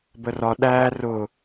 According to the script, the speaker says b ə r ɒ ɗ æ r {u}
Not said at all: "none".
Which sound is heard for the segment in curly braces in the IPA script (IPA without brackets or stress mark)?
ʊ